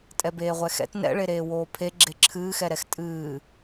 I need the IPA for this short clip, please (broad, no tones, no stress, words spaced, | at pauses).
tʼɛbeːʁʷɛxɛ̰t nɛ̰ɭeɾeː woːpʰe ɡ͡ǁeǁʰɨːxɛɾɛx tʼɨː